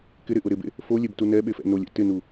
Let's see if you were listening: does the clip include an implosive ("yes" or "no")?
yes